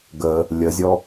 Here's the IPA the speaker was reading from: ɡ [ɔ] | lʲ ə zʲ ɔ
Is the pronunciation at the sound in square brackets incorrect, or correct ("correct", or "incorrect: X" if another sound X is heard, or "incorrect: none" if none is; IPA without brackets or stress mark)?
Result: incorrect: ə